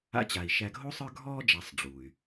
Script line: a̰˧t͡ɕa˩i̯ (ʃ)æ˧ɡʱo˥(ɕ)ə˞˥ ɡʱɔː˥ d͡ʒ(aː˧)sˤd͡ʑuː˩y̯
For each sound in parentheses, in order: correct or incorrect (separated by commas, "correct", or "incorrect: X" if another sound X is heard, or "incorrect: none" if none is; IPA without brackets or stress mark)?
correct, incorrect: sˤ, incorrect: a˧